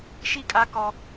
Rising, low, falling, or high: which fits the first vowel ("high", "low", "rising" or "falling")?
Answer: falling